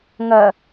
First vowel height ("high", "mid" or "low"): low